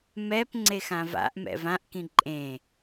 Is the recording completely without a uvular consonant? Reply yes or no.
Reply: yes